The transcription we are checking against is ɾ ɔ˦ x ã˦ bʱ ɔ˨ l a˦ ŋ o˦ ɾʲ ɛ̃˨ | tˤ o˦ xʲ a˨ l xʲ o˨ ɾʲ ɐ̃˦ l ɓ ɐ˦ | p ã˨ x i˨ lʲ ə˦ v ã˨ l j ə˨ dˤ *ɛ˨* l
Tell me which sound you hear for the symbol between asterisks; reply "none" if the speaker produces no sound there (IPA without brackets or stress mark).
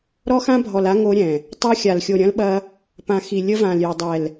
ɛ˨